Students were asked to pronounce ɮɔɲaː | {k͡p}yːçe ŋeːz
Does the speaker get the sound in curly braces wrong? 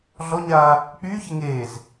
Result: no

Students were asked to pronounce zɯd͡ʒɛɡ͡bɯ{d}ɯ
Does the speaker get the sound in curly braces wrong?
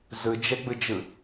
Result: yes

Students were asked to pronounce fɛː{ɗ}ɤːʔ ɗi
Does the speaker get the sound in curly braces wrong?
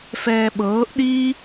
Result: yes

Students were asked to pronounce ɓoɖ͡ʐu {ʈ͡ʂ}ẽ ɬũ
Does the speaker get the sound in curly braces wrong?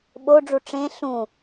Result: no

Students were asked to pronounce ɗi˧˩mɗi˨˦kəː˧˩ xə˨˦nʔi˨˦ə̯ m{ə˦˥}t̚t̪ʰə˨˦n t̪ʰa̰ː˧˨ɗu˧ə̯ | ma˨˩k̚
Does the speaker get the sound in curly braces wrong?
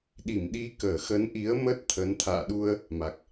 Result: no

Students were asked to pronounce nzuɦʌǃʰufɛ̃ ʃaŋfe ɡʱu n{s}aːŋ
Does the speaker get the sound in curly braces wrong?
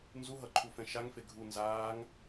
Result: yes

